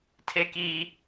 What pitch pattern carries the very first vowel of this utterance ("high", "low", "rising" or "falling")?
high